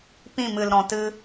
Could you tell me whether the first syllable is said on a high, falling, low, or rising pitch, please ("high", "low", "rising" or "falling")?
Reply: falling